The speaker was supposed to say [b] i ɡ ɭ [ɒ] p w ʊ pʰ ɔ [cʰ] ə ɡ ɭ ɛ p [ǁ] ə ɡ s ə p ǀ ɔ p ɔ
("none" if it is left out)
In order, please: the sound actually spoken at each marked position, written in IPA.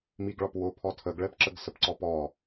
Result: m, ɒ, tʰ, ǁ

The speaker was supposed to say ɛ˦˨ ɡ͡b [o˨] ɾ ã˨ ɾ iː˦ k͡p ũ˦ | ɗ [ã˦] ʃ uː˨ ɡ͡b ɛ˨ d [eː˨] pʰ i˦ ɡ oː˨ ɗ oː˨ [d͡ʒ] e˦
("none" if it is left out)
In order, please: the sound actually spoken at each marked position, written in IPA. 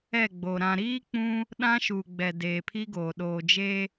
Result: o˨, ã˦, eː˨, d͡ʒ

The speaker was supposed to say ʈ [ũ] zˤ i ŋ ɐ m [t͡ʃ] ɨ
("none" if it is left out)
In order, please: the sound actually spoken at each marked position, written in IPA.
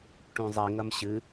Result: ũ, ɕ

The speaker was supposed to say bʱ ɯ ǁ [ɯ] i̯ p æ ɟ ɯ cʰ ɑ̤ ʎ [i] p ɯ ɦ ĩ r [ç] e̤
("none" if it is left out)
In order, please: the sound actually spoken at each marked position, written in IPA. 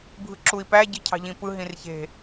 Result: u, ĩ, ç

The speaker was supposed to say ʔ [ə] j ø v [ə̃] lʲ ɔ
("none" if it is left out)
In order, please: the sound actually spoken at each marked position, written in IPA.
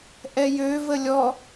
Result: ɛ, ə

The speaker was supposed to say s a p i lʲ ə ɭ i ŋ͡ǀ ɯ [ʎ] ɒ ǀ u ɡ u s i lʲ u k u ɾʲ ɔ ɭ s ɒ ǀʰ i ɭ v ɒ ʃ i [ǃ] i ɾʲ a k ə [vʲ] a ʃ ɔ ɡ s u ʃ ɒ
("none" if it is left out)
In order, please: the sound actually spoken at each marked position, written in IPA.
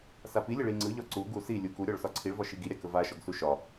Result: ʎ, ɡ, v

